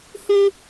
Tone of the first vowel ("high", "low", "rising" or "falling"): high